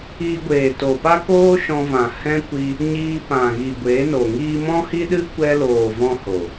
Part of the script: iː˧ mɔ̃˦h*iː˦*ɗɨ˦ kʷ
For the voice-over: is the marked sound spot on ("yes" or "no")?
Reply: no